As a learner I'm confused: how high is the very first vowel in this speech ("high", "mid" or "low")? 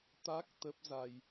low